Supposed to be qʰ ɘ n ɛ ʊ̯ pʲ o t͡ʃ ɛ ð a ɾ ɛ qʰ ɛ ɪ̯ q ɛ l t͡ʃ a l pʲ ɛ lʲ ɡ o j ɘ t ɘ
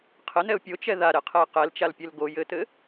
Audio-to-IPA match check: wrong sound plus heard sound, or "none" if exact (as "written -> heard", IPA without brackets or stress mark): lʲ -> l